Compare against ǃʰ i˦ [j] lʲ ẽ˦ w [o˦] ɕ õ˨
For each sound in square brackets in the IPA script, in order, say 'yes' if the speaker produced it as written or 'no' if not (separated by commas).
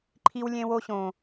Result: no, yes